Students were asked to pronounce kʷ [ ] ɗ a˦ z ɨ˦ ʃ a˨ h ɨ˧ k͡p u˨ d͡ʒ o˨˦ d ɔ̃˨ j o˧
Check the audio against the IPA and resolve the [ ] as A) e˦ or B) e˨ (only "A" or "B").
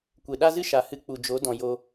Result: B